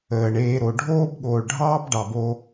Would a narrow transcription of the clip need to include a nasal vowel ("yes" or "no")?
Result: no